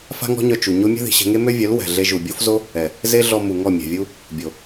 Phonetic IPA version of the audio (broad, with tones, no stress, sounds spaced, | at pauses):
f a̤˦ ŋ ɔ̤˦ ɲ œ˧ t͡ʃ u˨ ɲ o˦ mʲ ɛ̤˦ ð i̤˨ ɕ ɛ̤˧ ŋ e˦ m ø˦ vʲ œ˨˦ l w ɛ̤˨ ɮ e˦ ʒ u˨ bʲ o˦ f z o˦ | ɛ˨ | z e˦ ɮ ɔ˧ m u˨ ŋ ɔ˦˨ mʲ ɛ̤˨ vʲ u˦ | bʲ o˨